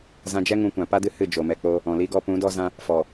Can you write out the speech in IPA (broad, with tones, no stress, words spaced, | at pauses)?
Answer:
zã˧d͡ʒɛ˦ŋũ˧kʷã˨ pa˦dɨ˦ hɨ˦˨d͡ʒo˨mɛ˧k͡po˦ | ɔ̃˨li˦ɡɔ˦ pũ˨˦dɔ˦zã˦ | fɔ˨